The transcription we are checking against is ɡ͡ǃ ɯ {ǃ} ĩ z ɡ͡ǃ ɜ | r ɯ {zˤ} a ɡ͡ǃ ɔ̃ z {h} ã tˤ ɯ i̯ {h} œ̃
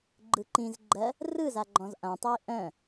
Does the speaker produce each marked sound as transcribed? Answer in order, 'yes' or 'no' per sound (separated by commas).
yes, no, no, no